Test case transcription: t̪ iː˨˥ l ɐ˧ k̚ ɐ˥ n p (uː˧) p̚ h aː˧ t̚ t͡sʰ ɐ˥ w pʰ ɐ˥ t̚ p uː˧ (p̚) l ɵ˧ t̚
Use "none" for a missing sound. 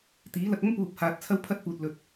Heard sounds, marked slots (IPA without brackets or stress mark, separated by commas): uː˧, t̚